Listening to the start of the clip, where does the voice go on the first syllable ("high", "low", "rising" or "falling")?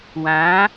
rising